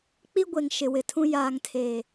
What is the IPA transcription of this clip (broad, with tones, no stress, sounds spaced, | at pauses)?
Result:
k͡p i˦ ɡʷ e˨ ŋ ʃ ɪ˨ w ɪ˨ tʰ ũ˦ j aː˨ ŋ tʰ e˨